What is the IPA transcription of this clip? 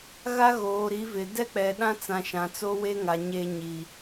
ɣ a˦ ɣ oː˨ ɾ i˨˦ v ɪ˨ d ɛ˦ k͡p ɛ˨ ɗ ã˦ t͡s ã˨ ʃ ã˨ t͡s oː˦ w e˦ ŋ a˨ ɲ e˦ ɲ i˨

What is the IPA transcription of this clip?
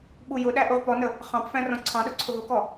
ɓ u j ʊ ɗ æ ʔ u ʁ p ɔ n ə | χ ɑ̃ p f æ̃ r ɔ̃ ǀʰ ɑ̃ ɗ ʊ ǀʰ ʊ ɦ ʊ k ɔ

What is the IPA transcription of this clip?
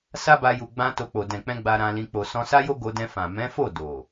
s a˦ b a˧ j u˨ ɡ͡b ã˧ t o˧ k͡p o˨ d ɛ̃˨ k͡p ɛ̃˧ ɡ͡b a˧ ɾ ã˧ l ĩ˧ k͡p o˧ s ɔ̃˧ s a˦ j o˦ ɡ o˧ d ɛ̃˧ f ã˨ m ɛ̃˨˦ f o˦˨ d o˨

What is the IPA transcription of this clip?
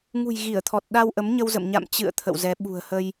ŋ ṳ˨˩ j ɣ i˧˩ ə̯ t̪ʰ ɔ˨˩ t̚ ɗ a˧ w ʔ ə˨˦ m ɲ ə˧ w z ə̰˧˨ m ɲ a̰˧˨ m t͡ɕ ɨ̰˧˨ ə̯ t̪ʰ ə̰˧˨ w z ɛ˨˦ ɓ ṳ˨˩ ə̯ h ə˧ j

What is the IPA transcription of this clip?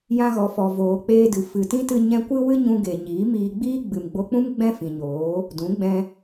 j ã˧ ɣ ɔ˨ f ɔ˨ v oː˨ k͡p eː˧ d ɨ˨ f ɨ˨ t ĩ˦ t ɨ˧ ɲ ɛ̃˧ kʷ ɨ˦ w ɨ˦ ɲ ũ˧ ɡ e˨ ɲ iː˨˦ m iː˧ ɡ͡b iː˦ ɡ͡b ɨ˨ m ɡ͡b o˧ k͡p ũ˦ m ɡ͡b ɛ̃˦ f ĩ˨ ɲ oː˨˦ | d ũ˨˦ ɡ͡b ɛ̃˧

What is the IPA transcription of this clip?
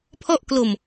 pʰ ɔ˥˩ ʔ k l o˧ m

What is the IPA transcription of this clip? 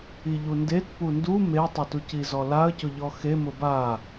i ʎ u n d e t p u n d u m e tˤ ɪ t u c i z ɔ l a ə̯ c ʊ ʎ ɔ x e m ʊ b a

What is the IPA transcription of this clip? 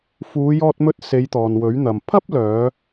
f uː˨˧ j ɔː˧ t̚ m ɵ˧ t̚ s e˨˧ j t̪ ɔː˨ n w ɵ˨˥ ɥ n̪ ɐ˨ m pʰ ɐ˥ p̚ l œː˨˧

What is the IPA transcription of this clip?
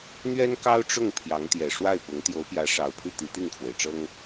n̪ ɥ ɛ˥ n k ɑ˥ ʊ̯ ʈ͡ʂ ʊ˥˩ ŋ pʰ j ɑ˧˥ ŋ t̪ j ɛ˨˩ ʂ w a˥˩ ɪ̯ p ʊ˧˥ ŋ t̪ j o˧˥ ʊ̯ p j ä˧˥ ʂ ɑ˨˩ ʊ̯ pʰ y˥˩ t̪ i˧˥ t̪ i˥˩ ŋ kʰ w e˩ ɪ̯ ʈ͡ʂ ɤ˥ ŋ

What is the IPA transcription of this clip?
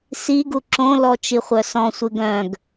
s i ɡ u ǁ õ l ɔ t͡ʃ i χʷ œ s ɔ̃ sʷ ɨ ɡ œ̃ ɡ

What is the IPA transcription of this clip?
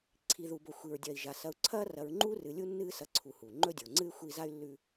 ǀʰ i˩ ð u˩ b o˩ xʷ i˩ ɹ dʲ ɐ˩ i̯ ʒ a˩ s ɐ˨ u̯ ǀʰ ɐː˥ r ɐ˨ ɹ ŋ͡ǃ u˥ r ɨ˨ lʲ u˥ nː ɨː˦ s ɐ˨ ǀʰ u˩ h u˩ ŋ͡ǃ ɵ˥ dʲ o˩ ŋ͡ǀ ɨ˥ y̯ xʷ i˦ z a˥ y̯ lː ʉ˦

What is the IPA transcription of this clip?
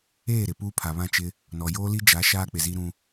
eː˦˨ ɾ ɪ˨ p uː˦ pʰ a˨ β ã˦˨ t͡ʃ ɪ˦ | n ɔ˨ j oː˦ l i˦ d͡ʒ a˨˦ ʃ aː˦ k͡p ɪ˨ z i˦ ɾ ũ˦

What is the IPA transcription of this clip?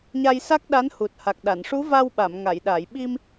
ɲ a˧ j s a˦˥ k̚ ɗ a˧˥ n h u˨˩ t̚ h a˨˩ k̚ ɗ a˨˩˨ n ʂ u˧˥ v a˧ w ɓ a˨˩˨ m ŋ a˨˩˨ j ɗ a˨˩˨ j ɓ i˧ m

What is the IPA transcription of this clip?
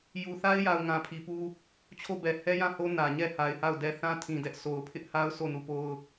j u˨ θ a˦ ɪ̯ j a˨ ʊ̯ ŋ ã˨ pʰ i˨ p u˦ | t͡ɕʰ o˦˨ b ɛ˨ h ɛ˦ j ã˦˨ h o˦ n ä˨ ɲ ɛ˦˨ h a˨ ɪ̯ h a˦˨ ʊ̯ d ɛ˦ θ ã˦ tʰ ĩ˨ d ɛ˦ ʔ sʰ o˨ ʊ̯ pʰ ɪ˦ ʔ h a˦ ʊ̯ sʰ o˦˨ n u˦˨ p o˦ ʊ̯

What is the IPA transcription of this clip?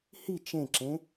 h i t͡ʃ ẽ ǁ ẽ

